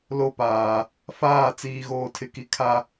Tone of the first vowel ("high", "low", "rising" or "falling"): high